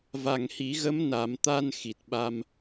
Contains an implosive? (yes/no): yes